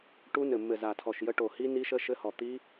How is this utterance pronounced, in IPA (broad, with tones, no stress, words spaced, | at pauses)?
ʈu˦˥nɘ˧˩ mːɘ˧˩za˧˩tʰɔ˧˩ʃjə˦˥ ʈo˧˩ hi˦˥ ni˦˥ʃə˦˥ ʃɘ˦˥hɔ˧˩t̪i˦˥